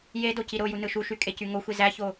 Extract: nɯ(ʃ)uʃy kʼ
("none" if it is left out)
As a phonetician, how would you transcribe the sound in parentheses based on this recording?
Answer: ʃ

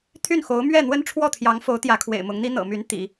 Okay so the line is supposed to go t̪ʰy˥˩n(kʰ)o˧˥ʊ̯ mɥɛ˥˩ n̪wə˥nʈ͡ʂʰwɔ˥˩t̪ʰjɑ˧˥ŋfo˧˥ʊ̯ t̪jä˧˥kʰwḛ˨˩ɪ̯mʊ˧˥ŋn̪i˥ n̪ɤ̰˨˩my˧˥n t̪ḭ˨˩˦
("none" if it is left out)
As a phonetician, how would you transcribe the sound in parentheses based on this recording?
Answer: x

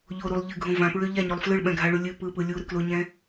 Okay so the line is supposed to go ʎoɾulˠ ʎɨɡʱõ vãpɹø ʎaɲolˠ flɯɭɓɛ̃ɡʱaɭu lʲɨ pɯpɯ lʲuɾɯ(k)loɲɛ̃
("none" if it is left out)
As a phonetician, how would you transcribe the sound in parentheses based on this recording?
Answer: k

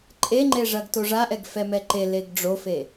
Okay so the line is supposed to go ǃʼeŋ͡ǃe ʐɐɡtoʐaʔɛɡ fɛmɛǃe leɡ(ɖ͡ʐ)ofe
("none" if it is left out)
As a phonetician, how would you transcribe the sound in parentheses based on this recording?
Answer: ɖ͡ʐ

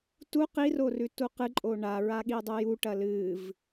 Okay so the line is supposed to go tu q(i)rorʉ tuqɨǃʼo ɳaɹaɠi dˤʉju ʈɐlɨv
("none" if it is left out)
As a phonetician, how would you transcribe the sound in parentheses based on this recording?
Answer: i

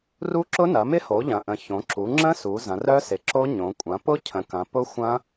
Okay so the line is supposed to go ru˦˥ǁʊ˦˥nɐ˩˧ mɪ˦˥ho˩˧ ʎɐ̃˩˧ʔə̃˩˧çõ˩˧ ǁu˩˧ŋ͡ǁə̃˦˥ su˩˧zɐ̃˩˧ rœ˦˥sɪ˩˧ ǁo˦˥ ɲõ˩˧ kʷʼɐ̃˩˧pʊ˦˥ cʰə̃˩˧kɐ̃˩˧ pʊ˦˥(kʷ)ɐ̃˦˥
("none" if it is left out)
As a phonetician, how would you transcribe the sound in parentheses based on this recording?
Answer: xʷ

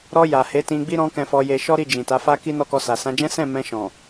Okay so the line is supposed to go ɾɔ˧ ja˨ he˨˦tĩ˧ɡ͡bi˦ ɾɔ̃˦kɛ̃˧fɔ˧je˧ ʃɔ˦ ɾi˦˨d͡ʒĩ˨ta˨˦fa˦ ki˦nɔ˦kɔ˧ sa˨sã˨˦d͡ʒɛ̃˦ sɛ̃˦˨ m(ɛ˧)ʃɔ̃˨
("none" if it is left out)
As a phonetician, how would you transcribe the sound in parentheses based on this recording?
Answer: ɛ̃˧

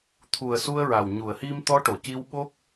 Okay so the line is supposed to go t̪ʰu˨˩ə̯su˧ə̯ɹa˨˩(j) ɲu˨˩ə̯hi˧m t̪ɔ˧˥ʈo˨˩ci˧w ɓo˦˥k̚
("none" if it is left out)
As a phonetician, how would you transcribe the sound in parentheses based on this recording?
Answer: w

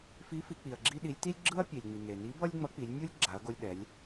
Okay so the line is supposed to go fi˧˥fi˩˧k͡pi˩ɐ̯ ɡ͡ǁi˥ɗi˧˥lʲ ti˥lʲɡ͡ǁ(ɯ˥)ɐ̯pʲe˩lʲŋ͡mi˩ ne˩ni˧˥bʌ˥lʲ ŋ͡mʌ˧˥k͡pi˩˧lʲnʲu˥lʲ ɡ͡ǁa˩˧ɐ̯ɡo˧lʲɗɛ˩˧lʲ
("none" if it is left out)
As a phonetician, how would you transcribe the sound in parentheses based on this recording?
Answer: ɯ˥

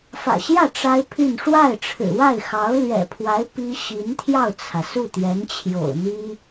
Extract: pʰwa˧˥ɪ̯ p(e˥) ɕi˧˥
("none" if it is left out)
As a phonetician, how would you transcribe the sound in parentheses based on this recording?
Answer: i˥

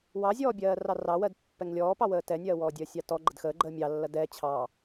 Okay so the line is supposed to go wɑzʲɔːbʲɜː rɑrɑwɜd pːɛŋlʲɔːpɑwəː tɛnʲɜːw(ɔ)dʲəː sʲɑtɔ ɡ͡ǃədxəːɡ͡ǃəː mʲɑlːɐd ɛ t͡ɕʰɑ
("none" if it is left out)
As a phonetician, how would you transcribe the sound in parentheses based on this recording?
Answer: ɔː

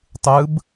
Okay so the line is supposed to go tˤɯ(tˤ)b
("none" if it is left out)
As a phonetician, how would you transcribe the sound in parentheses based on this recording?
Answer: none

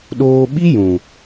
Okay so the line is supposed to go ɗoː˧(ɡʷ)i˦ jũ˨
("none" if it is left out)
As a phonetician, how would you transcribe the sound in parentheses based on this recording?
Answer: ɓ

